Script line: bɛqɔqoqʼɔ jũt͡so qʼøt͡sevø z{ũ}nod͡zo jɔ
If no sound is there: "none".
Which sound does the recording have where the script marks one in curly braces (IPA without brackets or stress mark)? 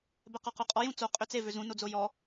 ũ